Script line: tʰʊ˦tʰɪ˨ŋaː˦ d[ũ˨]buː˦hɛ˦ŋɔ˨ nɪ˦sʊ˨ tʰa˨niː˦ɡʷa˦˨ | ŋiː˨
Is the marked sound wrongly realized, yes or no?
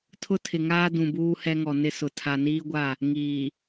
no